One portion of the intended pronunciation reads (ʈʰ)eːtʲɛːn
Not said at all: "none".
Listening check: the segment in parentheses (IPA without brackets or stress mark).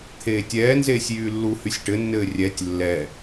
t̪ʰ